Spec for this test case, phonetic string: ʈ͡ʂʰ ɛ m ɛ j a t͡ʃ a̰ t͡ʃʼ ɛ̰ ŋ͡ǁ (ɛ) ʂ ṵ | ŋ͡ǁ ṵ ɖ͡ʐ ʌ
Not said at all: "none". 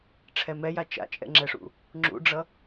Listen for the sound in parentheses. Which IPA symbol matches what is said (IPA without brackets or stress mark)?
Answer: ɛ